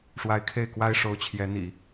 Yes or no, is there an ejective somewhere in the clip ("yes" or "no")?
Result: no